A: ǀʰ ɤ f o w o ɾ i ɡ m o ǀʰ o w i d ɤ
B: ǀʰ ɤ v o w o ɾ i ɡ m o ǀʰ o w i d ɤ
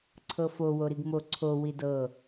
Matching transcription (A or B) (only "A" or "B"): A